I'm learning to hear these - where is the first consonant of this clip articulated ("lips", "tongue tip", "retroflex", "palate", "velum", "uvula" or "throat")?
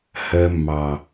throat